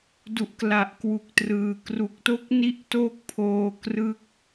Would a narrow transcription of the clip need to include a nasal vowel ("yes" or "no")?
no